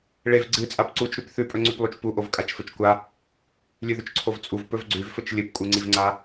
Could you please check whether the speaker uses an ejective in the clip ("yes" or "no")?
yes